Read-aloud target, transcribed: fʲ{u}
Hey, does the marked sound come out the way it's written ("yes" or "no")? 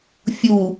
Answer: yes